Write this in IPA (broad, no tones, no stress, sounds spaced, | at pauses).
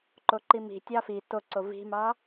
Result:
ǃ o ǃ i m i̤ tʲ ɑ f i t o ǀ o v i̤ m ɑ